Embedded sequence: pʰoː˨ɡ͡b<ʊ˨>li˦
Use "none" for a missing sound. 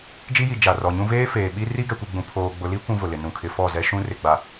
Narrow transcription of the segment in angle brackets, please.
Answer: ʊ˨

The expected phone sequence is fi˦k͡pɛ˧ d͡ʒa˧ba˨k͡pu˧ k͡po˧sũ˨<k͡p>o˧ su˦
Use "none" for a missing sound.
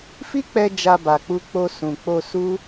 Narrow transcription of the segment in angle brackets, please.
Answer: k͡p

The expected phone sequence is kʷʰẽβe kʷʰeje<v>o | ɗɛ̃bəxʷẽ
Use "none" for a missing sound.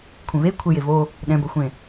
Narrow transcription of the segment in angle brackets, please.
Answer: v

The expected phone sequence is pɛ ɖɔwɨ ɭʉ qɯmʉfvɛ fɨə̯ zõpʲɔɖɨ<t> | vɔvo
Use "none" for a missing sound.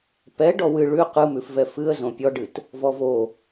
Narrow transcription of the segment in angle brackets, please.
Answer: t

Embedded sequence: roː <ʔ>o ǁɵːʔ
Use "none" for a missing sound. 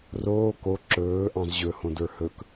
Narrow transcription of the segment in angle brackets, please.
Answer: k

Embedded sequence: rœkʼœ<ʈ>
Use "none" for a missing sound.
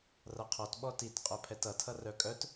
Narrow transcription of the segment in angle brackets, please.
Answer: t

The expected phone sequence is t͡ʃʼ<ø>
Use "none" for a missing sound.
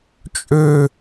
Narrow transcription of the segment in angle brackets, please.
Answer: ø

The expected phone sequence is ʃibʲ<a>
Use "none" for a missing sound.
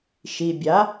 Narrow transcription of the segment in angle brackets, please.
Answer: a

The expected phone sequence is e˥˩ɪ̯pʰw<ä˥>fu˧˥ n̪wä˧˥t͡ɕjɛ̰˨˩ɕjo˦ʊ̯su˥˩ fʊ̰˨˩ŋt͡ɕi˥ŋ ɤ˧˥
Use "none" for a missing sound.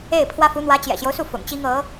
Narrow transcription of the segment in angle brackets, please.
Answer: ä˥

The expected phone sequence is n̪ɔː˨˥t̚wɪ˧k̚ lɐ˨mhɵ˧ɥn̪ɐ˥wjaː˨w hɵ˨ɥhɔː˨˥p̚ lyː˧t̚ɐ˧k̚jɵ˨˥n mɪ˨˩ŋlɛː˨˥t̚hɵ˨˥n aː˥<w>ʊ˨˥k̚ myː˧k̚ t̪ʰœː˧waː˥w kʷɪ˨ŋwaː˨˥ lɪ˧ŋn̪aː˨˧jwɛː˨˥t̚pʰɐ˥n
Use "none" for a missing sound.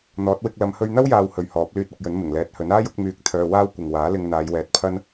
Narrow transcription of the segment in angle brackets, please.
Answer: j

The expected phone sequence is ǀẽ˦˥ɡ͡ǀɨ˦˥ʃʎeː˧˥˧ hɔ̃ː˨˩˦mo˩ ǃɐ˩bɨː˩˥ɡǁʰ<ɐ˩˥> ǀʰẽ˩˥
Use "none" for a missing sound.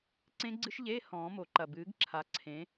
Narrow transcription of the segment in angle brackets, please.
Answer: a˩˥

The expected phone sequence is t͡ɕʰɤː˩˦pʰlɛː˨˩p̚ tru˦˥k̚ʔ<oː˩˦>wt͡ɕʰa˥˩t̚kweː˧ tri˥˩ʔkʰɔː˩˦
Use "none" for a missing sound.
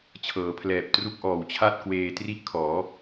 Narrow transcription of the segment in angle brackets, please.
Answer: ɔː˩˦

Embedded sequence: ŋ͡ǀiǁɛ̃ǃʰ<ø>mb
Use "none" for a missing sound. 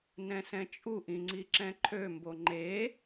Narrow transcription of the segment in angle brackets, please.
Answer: ø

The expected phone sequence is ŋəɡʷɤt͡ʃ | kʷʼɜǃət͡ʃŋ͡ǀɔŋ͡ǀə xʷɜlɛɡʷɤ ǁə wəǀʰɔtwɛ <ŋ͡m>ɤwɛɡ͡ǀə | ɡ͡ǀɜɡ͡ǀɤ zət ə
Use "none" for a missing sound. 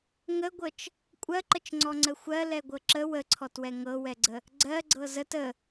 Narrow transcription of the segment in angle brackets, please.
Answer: ŋ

